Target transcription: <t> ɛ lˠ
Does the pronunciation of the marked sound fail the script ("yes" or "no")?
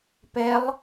yes